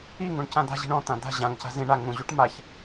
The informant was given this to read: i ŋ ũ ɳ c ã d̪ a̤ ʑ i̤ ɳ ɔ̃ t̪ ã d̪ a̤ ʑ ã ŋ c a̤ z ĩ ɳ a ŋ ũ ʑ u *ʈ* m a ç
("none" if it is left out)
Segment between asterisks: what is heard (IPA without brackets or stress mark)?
ʈ